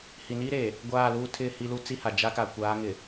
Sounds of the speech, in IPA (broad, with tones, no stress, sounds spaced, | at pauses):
h i˨ n iː˦ ɾ eː˨ | ɡʷ aː˦˨ l uː˦ tʰ ɪ˦˨ h i˦ l u˦ t͡s i˦ h a˨ d͡ʒ a˦ k a˨ kʷ aː˨˦ ŋ ɪ˨